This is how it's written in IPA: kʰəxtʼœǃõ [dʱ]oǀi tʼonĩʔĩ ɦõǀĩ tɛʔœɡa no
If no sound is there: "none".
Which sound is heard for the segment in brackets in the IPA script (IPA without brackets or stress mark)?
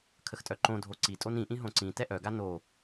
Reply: dʱ